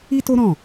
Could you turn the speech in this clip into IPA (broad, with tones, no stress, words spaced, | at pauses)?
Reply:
i˦to˦ ɾɔ̃˦˨